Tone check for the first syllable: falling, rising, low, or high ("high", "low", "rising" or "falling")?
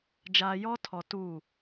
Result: low